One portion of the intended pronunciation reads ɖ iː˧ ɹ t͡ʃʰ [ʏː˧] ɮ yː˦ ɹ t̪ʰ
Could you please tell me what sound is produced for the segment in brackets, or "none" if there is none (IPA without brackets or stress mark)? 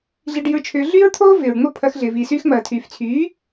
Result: ʏː˧